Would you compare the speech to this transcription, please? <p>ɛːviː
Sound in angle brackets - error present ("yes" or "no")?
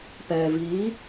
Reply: no